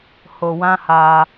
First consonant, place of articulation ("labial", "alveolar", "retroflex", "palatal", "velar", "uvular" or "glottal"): glottal